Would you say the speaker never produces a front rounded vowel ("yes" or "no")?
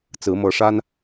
yes